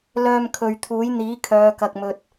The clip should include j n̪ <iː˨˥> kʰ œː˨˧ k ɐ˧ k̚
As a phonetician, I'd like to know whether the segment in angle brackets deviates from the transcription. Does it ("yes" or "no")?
no